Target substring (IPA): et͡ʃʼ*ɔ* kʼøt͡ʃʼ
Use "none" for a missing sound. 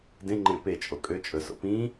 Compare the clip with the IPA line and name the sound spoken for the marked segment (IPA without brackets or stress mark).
o